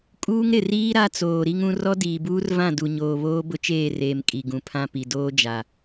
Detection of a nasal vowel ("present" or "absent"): present